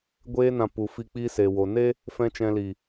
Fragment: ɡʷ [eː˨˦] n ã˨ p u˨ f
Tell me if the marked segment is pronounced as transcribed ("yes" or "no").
no